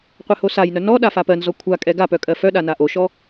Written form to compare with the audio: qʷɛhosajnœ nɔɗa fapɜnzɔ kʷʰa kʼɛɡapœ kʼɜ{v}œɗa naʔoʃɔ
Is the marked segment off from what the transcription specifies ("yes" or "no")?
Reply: yes